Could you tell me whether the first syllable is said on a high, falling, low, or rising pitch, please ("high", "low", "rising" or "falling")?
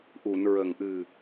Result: low